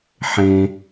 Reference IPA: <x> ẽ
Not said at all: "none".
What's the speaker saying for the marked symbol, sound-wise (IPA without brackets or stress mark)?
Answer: ħ